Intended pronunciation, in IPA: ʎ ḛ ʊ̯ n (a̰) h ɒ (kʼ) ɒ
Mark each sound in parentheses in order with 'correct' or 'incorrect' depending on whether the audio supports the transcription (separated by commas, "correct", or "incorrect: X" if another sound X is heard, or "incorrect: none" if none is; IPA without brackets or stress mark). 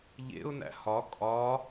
incorrect: æ̰, correct